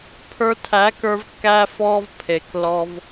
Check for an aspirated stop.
present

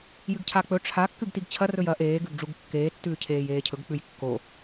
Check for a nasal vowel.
absent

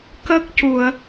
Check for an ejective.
absent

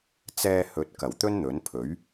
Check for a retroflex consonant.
absent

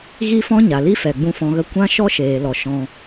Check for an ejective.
absent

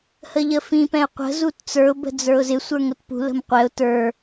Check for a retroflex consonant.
absent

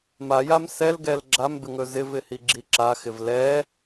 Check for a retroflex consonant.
absent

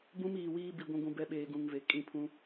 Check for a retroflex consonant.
absent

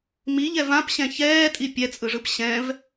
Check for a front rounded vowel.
absent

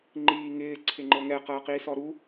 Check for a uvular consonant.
present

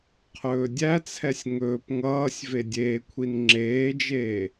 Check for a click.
present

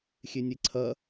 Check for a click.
present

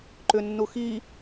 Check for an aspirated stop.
absent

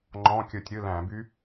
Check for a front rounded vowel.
present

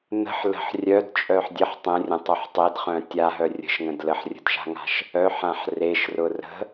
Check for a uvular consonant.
present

